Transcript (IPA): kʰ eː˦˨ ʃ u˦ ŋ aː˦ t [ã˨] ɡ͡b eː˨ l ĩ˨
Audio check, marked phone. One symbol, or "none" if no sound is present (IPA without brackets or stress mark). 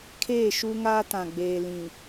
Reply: ã˨